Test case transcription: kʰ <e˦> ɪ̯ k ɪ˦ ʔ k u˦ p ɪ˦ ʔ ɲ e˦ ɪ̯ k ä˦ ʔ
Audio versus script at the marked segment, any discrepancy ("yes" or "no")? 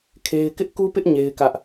no